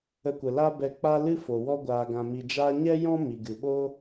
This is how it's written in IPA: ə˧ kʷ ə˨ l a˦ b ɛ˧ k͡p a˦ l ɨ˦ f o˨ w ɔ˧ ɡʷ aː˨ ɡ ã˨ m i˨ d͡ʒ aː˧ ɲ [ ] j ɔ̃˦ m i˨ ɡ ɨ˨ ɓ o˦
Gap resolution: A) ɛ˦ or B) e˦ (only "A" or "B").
A